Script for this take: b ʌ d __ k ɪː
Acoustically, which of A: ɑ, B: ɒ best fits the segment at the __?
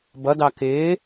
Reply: A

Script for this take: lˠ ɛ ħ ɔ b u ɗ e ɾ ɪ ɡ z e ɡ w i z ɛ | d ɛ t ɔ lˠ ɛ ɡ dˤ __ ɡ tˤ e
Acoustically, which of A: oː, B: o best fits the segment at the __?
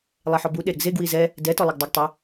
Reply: B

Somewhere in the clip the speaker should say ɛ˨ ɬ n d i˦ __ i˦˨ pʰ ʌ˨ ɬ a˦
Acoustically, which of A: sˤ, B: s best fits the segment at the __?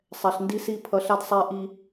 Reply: B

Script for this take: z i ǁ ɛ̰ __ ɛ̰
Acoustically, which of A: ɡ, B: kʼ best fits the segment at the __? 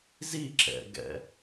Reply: A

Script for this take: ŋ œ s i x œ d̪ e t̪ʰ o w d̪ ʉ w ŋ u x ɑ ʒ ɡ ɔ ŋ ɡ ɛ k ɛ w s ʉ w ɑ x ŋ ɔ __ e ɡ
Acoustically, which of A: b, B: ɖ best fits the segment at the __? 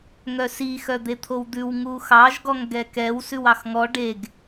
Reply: B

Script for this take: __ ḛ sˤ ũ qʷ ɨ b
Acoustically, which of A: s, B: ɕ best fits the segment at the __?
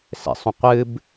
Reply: A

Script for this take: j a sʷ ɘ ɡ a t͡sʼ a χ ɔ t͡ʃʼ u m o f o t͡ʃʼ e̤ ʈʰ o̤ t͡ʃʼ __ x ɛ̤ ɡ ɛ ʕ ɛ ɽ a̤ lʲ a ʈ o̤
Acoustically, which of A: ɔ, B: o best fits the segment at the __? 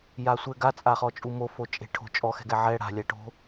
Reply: A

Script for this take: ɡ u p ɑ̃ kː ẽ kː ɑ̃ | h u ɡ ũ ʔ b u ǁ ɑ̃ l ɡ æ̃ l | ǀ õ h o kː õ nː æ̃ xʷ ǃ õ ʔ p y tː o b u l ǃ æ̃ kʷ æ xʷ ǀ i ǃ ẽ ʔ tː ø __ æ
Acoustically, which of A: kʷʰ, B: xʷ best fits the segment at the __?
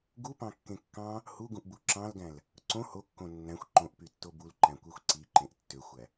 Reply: B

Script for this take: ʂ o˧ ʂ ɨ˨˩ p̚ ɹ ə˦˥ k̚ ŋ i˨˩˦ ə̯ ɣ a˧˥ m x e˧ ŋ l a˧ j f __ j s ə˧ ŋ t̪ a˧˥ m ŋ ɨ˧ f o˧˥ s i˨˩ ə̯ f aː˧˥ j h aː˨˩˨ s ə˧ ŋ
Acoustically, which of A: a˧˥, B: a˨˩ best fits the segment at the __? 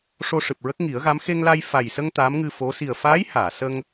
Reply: B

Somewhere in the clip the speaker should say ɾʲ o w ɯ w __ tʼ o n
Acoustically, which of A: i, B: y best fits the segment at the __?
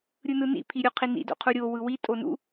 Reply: A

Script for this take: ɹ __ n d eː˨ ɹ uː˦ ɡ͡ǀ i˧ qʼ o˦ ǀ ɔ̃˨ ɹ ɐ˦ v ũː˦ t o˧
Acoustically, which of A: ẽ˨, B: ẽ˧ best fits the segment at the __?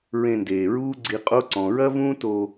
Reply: B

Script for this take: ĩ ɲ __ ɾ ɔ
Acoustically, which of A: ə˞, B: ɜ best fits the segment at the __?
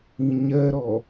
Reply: B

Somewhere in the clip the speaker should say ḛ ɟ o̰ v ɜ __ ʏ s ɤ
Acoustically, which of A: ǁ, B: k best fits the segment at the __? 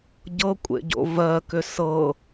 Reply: B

